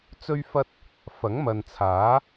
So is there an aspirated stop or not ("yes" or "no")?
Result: yes